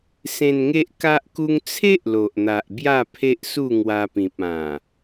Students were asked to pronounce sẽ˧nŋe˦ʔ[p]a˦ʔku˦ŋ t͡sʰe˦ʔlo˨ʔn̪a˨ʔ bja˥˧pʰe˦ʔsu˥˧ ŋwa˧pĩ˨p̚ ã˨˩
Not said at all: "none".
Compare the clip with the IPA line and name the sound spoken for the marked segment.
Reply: k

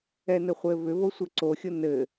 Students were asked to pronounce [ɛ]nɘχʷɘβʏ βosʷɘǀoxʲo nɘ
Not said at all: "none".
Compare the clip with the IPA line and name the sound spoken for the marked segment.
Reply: ɛ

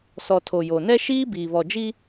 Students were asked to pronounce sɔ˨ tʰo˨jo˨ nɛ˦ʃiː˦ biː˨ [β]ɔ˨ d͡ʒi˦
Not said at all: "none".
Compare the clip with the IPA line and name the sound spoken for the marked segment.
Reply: β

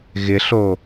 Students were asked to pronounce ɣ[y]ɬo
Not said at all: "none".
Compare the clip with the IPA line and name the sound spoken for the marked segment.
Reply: ɪ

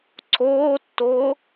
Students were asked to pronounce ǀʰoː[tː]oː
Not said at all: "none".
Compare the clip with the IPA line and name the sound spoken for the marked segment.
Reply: tː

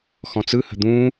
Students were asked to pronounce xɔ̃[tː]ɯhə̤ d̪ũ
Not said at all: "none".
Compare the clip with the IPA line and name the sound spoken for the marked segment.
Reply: t͡s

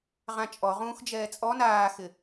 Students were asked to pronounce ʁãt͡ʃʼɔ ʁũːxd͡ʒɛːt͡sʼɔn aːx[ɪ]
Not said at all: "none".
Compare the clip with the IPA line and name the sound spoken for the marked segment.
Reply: ɪ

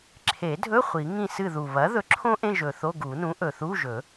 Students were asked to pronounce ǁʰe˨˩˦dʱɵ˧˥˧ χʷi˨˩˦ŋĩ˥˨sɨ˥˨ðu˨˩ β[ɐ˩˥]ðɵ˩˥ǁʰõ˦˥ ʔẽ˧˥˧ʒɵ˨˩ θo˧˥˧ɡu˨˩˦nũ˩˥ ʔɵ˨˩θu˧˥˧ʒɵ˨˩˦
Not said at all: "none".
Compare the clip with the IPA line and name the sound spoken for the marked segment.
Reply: ɐ˩˥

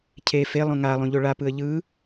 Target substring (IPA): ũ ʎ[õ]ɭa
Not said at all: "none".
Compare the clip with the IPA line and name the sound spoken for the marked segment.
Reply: o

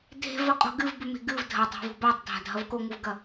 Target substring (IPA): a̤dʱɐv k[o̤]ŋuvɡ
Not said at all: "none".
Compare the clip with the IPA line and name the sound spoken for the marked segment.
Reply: o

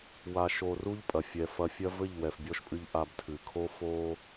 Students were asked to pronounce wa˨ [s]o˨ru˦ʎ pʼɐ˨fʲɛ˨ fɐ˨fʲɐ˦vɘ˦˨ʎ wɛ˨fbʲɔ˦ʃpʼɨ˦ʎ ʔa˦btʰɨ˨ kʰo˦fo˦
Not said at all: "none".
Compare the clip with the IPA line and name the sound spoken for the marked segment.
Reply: ʃ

